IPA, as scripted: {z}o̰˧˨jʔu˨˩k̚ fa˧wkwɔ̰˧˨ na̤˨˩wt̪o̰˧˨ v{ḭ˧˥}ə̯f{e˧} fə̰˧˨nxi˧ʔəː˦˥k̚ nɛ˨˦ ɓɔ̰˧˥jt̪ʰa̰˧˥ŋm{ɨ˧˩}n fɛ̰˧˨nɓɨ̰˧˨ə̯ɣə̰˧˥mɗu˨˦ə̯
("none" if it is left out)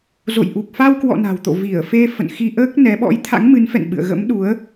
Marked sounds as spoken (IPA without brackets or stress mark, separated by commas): z, i˧˩, e˧, ɨ˨˦